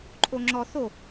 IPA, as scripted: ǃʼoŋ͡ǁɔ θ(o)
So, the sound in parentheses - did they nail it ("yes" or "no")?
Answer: yes